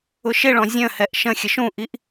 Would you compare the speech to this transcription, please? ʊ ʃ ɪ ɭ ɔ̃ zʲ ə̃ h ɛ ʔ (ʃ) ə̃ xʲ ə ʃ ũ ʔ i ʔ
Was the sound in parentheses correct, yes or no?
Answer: yes